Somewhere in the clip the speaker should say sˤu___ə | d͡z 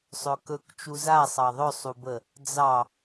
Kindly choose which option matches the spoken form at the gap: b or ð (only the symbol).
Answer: b